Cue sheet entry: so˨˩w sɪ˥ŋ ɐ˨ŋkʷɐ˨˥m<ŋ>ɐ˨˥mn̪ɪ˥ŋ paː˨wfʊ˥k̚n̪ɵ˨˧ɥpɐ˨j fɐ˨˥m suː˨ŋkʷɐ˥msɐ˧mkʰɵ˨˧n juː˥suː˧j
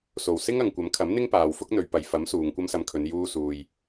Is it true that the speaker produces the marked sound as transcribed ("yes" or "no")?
no